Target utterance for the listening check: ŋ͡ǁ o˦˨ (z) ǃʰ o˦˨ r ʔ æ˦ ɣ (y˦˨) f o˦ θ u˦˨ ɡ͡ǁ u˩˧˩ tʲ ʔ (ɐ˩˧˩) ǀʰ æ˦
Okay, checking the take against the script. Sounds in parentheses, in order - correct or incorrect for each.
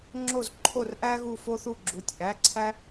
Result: correct, incorrect, incorrect

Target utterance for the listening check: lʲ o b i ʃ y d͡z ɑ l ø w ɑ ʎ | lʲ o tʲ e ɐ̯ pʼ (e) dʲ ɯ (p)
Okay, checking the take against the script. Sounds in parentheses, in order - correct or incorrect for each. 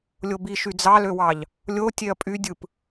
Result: incorrect, correct

